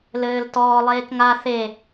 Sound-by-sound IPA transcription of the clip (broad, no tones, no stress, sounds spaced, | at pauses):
l ɘː l t ɔː lˠ eː k ŋ a θ e